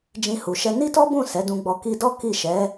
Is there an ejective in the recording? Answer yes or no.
no